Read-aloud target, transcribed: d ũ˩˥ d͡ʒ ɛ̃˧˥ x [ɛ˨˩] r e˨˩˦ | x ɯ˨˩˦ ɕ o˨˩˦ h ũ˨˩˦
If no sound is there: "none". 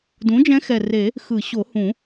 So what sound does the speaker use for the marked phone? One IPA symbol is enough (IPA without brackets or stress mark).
ɛ˨˩